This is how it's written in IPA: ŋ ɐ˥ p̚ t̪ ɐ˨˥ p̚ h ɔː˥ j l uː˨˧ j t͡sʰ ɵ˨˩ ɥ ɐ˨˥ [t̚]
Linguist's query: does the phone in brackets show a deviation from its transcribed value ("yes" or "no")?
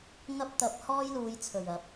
yes